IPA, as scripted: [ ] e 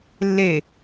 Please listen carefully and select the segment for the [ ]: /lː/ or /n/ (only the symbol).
lː